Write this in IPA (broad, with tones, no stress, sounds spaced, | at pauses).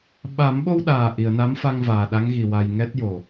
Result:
ɓ a˨˩˦ m ɓ o˧ w ɗ aː˨˩ ʔ i˨˩˨ ə̯ n a˧˥ m f a˧ ŋ v aː˨˩ ɗ a˧˥ ŋ ɣ i˨˩ w a˧ j ŋ ɛ˦˥ t̚ j o˨˩